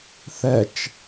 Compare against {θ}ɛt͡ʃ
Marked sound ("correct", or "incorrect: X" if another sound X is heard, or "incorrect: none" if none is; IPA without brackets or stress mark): correct